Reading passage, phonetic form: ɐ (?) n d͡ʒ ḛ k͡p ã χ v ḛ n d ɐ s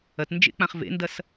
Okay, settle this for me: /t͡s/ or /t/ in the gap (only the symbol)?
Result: t